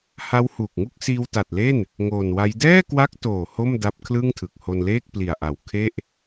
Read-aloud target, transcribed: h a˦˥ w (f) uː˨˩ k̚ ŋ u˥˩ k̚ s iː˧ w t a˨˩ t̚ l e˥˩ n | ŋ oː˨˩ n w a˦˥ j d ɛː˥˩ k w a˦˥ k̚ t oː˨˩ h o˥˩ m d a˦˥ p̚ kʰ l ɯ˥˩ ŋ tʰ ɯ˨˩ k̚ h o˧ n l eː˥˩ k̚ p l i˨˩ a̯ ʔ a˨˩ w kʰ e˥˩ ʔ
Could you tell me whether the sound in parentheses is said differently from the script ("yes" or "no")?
yes